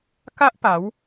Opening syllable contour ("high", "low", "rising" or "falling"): high